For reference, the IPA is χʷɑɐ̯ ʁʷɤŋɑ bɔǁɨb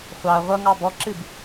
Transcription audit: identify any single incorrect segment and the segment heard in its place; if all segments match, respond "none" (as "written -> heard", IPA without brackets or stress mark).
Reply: none